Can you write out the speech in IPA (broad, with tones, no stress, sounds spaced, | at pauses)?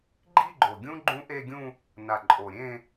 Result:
ɡ͡ǃ i˥˧ ɡ͡ǃ o˨˩ ɡʲ ũ˦˥ ɡ͡ǃ ũ˦˥ ʔ e˥˧ ɡʲ ũ˥˧ | n a˨˩ ǃʼ o˨˩ ɾʲ ẽ˥˧